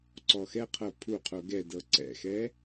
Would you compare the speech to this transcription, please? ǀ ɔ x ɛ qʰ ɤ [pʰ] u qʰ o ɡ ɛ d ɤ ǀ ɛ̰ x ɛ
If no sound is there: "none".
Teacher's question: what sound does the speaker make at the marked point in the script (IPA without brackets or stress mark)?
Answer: pʰ